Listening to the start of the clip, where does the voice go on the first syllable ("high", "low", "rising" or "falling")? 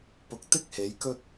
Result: low